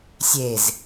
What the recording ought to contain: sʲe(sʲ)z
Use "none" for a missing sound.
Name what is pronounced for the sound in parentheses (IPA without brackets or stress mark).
none